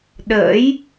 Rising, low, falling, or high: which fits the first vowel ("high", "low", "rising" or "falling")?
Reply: rising